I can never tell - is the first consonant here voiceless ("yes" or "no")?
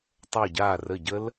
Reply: yes